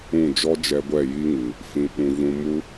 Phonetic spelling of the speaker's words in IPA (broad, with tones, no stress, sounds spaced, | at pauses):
ũ˦˨ d͡ʒ ɔ˦ d͡ʒ ɛ˧ ɡʷ ɛ˦˨ j i˦ ŋ ɨ˨ | f ĩ˧ ɓ ũ˧ v ũ˧ m u˦